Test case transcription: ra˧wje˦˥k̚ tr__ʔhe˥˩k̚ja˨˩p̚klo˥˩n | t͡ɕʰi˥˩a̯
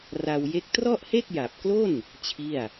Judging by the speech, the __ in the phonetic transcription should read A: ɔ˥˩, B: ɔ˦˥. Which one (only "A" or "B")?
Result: A